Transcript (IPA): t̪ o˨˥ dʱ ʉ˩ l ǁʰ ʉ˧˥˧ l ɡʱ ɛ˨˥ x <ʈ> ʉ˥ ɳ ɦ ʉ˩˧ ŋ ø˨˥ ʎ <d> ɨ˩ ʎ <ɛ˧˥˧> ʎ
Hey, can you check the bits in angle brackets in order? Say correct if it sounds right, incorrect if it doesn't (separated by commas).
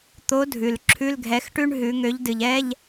correct, correct, correct